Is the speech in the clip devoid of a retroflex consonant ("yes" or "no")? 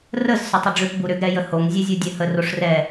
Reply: no